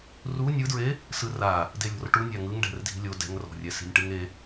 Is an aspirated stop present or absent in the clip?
absent